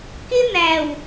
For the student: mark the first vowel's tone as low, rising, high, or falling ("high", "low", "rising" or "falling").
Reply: high